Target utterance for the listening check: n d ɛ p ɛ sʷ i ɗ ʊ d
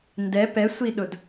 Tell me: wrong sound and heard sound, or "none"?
none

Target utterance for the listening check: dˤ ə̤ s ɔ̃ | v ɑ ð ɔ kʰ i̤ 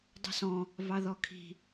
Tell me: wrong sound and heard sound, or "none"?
none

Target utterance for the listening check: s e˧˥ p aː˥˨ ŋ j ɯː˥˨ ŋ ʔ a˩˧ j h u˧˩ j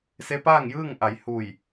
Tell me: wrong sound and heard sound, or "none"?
none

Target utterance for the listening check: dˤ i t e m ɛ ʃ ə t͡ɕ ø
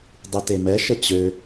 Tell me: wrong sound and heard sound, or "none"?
none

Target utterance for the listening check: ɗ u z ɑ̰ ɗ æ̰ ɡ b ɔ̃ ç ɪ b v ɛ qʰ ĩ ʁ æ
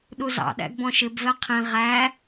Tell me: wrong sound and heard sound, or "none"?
ç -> ʃ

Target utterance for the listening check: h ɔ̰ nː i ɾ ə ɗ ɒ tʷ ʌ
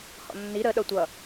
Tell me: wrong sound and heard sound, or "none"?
ɒ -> ʌ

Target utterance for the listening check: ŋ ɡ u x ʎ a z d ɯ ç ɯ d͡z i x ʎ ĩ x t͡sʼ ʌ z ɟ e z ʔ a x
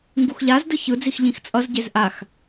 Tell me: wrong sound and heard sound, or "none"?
none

